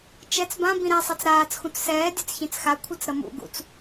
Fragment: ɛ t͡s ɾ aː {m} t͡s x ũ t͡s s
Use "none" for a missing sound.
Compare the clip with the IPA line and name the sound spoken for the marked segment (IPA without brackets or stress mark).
none